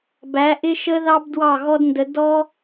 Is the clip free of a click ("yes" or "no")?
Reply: yes